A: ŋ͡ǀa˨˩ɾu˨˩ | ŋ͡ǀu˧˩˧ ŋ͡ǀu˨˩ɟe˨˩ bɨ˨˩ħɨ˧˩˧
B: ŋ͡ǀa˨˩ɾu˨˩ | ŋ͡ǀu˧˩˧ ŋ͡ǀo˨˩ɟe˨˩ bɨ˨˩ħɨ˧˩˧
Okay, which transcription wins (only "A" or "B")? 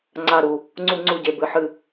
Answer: A